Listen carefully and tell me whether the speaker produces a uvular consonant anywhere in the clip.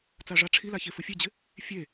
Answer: no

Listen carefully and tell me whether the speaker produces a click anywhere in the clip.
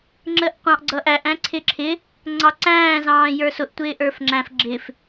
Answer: yes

